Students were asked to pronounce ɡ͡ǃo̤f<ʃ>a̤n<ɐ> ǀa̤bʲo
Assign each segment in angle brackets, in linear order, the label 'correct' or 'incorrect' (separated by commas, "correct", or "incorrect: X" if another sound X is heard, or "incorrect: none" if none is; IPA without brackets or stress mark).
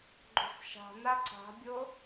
correct, incorrect: a